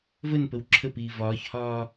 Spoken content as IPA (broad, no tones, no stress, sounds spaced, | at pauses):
v ə n p ə w ǁʰ ə p iː v ɒː ç h ɒː